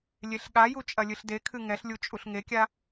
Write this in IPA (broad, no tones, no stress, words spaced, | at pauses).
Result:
lʲeɬɠaju t͡ʃʼɐlʲɨɬdekʰɨ ŋɛɬlʲu t͡ʃʼuɬŋekʲa